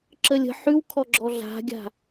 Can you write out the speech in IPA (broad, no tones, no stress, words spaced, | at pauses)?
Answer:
ǁəlʲə̤ ħʉwkʰɔɡ͡ǁɔ ɮa̤ɡʲa̤